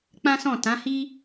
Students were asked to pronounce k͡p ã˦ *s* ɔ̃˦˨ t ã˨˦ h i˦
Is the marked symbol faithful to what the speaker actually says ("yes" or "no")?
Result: yes